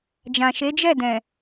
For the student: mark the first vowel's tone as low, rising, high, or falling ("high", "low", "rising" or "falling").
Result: low